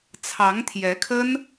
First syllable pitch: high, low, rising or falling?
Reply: rising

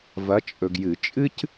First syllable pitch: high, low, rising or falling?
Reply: rising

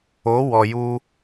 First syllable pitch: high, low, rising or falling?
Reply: rising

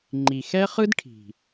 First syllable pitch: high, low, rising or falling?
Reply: low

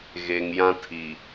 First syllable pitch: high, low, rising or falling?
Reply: low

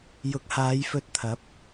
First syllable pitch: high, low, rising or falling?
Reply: rising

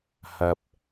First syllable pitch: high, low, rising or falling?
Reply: low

